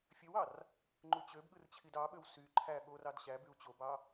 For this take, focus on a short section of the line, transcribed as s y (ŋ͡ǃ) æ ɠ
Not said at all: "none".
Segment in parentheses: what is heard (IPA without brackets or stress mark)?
ǃʰ